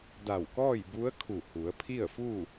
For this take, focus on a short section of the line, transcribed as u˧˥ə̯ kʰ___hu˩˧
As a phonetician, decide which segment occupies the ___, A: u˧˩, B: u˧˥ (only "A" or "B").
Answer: A